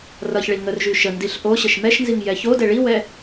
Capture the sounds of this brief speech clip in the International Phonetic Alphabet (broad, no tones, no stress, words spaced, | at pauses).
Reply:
rʌçɭi ŋərʒy ʃəndiɬ ʔoɕəʃ mɛʃnziŋ jɛçodɛ ɭiwɛ